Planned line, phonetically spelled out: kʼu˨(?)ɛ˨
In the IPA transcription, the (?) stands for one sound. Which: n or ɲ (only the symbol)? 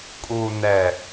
n